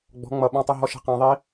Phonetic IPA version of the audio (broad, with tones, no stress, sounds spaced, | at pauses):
ɡ͡b ɔ̤˨˦ ŋ͡m ʌ˨ ɓ ɔ̃˧ tˤ ʌ˧ ɦ ɔ˧ ʃ ɛ̤˧ q æ̃˧ ðˤ i˦